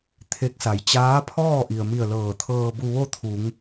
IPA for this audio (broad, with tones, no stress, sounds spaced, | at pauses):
t̪ʰ e˧˥ k̚ s a˩˧ j t͡ɕ aː˧˥ pʰ ɔː˥˨ ʔ i˩ ə̯ m i˧˩ ə̯ l ɤː˧˩ t̪ʰ ɤː˧ b u˧ ʋ o˥˨ t̪ʰ u˩˧ ŋ